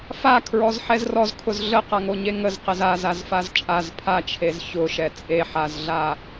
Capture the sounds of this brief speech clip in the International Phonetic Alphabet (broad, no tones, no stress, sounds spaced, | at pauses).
f a kʰ ɹ ɔ z ħ ɛ z r ɔ z kʰ ʊ z ɮ ə q a ŋ o ɲ e ŋ ə z q e z a z a z f a z t͡ʃʼ a z pʰ a t͡ʃʰ e z ç ʊ ʃ ɛ t͡sʼ e ħ a z ɮ a